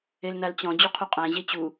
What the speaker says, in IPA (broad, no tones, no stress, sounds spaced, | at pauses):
e l n a l t͡ɕ ɔ̃ d͡ʑ u qʰ u qʼ æ̃ ʑ e t͡ɕ u